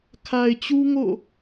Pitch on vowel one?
low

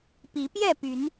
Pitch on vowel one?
rising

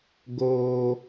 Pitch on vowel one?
high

